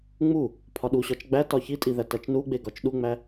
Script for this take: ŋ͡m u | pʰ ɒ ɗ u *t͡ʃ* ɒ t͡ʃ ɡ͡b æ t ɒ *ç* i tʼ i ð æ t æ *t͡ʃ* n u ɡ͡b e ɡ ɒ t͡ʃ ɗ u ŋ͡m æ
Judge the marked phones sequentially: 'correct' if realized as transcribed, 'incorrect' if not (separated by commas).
incorrect, correct, correct